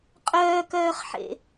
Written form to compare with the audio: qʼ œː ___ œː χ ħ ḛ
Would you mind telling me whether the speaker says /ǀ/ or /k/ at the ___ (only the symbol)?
k